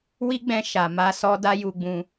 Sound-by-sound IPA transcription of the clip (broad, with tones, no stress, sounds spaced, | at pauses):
w i˦ ɡ͡b ɛ̃˧ ʃ a˨ m a˧ s ɔ˧ d a˦ j u˧ ɡ͡b ũ˧